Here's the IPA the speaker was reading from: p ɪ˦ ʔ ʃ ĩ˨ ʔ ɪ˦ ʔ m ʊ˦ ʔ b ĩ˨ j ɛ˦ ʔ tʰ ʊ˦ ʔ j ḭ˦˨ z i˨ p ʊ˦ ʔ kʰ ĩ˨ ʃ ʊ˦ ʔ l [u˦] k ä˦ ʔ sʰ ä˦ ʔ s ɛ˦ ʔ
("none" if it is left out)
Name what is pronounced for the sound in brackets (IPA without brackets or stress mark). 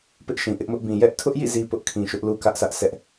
u˦